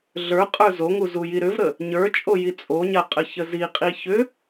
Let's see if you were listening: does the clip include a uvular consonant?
yes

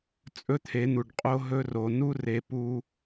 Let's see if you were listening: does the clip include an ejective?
yes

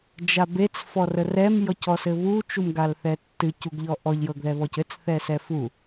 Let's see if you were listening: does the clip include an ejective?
no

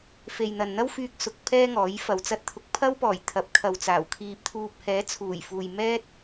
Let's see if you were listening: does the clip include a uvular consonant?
no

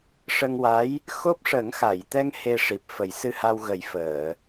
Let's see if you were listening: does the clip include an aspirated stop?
no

